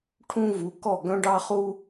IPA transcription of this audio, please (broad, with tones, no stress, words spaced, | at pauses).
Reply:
ʈʰũ˦vu˨˦kɔ˦˨ ɡœ̃˦ɖɑ˦χu˦